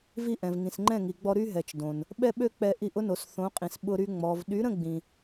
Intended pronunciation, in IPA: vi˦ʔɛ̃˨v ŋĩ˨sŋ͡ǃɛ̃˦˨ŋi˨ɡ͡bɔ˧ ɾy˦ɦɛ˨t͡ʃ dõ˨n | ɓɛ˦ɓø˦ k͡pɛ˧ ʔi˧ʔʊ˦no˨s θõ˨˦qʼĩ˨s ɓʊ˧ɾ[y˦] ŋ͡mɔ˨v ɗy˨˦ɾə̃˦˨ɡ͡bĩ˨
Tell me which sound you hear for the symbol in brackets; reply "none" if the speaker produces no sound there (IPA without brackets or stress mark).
y˧